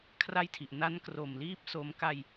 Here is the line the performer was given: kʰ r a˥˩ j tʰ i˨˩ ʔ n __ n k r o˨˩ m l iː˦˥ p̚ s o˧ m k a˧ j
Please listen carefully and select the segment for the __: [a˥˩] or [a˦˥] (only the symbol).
a˦˥